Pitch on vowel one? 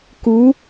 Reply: rising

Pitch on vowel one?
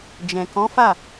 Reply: low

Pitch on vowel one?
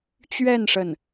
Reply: falling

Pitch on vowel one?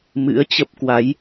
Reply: rising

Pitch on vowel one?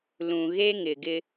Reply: low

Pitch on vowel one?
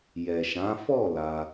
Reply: low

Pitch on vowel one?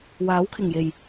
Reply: rising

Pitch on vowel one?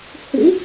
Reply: rising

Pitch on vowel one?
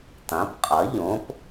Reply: rising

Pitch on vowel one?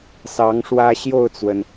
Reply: rising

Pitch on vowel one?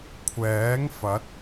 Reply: rising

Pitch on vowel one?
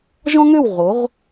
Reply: high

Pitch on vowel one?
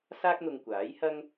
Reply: high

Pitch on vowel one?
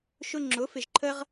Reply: high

